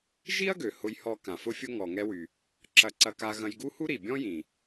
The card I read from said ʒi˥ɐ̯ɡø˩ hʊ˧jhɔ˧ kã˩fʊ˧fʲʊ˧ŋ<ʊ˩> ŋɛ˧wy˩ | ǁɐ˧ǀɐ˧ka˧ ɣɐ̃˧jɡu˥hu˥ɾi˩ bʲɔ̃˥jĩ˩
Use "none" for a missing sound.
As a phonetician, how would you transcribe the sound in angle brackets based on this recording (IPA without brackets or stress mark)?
ɔ˩